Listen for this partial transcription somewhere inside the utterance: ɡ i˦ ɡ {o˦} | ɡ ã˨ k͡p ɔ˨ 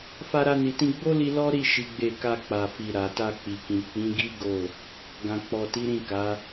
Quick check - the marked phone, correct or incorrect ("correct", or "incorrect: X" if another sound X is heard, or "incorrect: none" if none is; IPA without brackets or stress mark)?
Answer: incorrect: o˦˨